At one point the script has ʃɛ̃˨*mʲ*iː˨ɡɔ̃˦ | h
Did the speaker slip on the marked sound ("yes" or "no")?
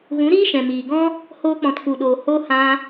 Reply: yes